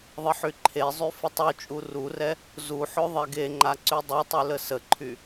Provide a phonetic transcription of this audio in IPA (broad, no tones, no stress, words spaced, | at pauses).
ðˤəħyǃʰezˤy fətˤut͡ʃʼu rurɛ | zuħø ðˤɛɡeŋ͡ǃa ǀydˤutˤy ləsəǃʰy